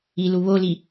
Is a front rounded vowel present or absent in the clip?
absent